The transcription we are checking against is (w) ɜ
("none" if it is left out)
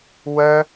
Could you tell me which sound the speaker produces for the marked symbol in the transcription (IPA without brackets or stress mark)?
w